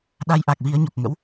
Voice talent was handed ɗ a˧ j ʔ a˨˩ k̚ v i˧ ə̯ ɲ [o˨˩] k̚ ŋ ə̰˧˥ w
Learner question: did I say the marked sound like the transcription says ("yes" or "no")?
yes